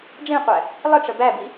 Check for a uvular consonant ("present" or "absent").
present